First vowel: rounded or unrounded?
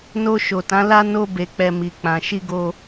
rounded